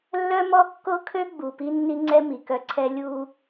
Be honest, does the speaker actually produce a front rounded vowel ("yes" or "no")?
yes